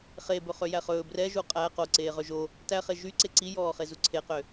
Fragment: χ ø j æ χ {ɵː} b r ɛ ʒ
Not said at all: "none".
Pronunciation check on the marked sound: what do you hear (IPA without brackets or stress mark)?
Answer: ɵː